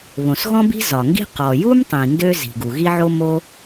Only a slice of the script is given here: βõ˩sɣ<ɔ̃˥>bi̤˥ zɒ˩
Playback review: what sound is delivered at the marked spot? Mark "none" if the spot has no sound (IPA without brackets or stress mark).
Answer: ɔ̃˥